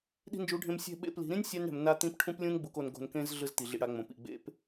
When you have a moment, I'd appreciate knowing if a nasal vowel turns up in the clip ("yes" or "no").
yes